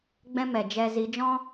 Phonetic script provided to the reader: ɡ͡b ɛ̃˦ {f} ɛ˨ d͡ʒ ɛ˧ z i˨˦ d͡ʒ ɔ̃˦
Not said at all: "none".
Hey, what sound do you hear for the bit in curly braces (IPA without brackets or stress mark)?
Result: m